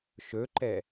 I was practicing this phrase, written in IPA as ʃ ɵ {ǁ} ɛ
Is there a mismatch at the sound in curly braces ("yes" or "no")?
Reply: yes